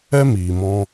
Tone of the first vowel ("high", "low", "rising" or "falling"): high